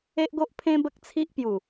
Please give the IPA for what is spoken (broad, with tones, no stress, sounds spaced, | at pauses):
e˦ ʔ ɡ o˦ ʔ pʰ ẽ˦ b ə˦ k̚ t͡sʰ i˦ ʔ p j u˨˩